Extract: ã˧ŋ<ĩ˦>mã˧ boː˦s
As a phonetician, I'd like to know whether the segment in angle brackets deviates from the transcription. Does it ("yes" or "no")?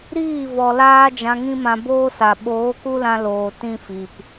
no